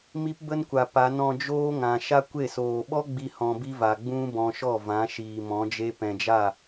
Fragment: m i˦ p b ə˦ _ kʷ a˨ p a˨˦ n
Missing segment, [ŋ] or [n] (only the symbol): n